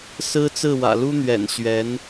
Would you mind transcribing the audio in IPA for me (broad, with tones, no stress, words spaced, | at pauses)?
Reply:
sɹ̩˥t͡sɹ̩˥˩wä̰˨˩ lu˥n̪ɥɛ̰˨˩n ɕɥɛ˧˥n